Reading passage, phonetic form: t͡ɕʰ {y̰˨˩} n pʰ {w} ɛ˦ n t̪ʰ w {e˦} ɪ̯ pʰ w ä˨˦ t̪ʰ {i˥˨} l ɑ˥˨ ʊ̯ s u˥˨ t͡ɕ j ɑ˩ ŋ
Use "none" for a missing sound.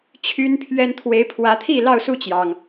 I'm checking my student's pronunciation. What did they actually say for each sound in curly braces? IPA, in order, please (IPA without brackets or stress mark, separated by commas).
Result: y˦, ɥ, e˨˦, i˥˨